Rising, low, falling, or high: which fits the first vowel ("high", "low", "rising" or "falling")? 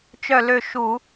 falling